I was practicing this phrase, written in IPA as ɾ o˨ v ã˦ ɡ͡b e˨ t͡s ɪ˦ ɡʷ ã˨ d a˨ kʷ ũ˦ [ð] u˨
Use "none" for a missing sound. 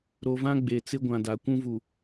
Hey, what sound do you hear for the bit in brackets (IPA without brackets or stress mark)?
v